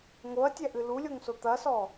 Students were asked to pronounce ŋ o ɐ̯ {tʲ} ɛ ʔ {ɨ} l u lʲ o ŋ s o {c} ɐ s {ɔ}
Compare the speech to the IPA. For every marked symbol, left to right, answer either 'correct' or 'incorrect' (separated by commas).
correct, correct, incorrect, correct